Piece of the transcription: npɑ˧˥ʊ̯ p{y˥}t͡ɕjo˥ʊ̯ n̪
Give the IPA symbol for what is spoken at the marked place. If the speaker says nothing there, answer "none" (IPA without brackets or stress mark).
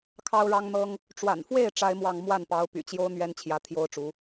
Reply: y̰˨˩